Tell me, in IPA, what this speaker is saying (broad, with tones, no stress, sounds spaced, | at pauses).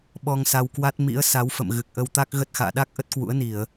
ɓ ɔ˧ ŋ s a˧ w k w a˦˥ t̚ m ḭ˧˥ ə̯ s a˨˦ w f ə̰˧˨ m ɣ ɨ˨˩ k̚ ʔ ə˧ w t̪ a˦˥ k̚ ɣ ə˦˥ t̚ x a̰ː˧˨ ɗ a˦˥ k̚ ʔ ə˦˥ t̚ k w ṵ˧˥ ə̯ n i˧˩˨ ə̯